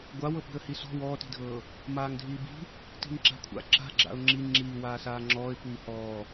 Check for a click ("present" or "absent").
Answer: present